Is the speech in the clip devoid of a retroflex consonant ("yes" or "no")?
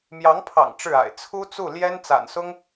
no